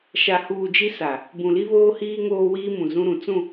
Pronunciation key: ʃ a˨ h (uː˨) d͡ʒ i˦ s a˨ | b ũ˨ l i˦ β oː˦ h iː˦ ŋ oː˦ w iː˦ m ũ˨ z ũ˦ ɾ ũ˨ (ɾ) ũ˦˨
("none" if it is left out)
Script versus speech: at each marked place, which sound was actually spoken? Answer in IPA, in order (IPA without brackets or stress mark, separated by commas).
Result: uː˨, t͡s